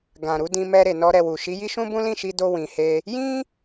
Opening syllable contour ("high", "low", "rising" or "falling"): low